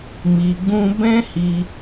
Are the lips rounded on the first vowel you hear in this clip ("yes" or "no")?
no